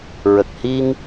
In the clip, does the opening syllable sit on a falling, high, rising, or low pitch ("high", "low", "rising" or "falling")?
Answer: low